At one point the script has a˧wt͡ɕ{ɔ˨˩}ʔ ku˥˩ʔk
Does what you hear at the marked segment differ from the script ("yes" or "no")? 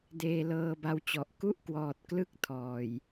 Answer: no